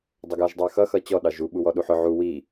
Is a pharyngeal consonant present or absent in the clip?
present